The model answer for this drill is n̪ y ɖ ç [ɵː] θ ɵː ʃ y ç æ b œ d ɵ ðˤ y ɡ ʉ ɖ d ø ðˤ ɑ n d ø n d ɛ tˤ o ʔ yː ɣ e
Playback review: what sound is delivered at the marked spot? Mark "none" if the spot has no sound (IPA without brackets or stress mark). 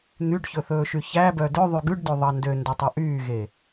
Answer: ɵ